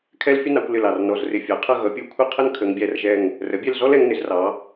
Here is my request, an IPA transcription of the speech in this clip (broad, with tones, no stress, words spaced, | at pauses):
kʰɛ˥l fʲʊ˥nɑ˩˧kʷ lɪ˧˩l ɑ˧˩rnɔ˧˩zrɪ˧ fʲɑ˩˧qʰʌ˥˧ ɣʌ˩˧pʲu˧˩kʷʰi˥˧ qʰə˥n kʰə˩˧ŋbʲæ˧˩rʒɛ˧˩ŋ | rə˩˧bʲɛ˥˧lzɔ˥l ɛ˩˧ŋnɪ˩˧zrɑ˩˧